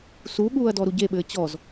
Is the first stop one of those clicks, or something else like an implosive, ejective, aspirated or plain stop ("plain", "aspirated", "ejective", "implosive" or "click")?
implosive